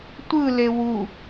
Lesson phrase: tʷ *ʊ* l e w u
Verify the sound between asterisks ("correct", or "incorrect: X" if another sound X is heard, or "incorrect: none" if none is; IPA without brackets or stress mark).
incorrect: ɯ